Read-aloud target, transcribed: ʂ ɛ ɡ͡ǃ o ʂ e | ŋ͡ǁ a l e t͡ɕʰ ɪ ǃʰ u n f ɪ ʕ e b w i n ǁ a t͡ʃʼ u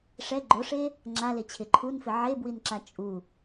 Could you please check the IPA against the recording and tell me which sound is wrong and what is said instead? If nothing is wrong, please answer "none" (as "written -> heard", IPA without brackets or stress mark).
none